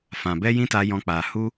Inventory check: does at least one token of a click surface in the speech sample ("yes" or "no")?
no